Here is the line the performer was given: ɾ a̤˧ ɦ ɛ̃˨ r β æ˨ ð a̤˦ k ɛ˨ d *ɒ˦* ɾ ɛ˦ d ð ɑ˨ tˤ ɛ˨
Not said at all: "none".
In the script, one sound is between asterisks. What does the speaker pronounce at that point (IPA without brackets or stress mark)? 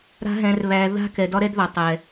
ɒ˦